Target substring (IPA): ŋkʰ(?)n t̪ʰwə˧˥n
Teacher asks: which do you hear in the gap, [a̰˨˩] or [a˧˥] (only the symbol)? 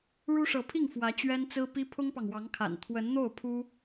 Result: a̰˨˩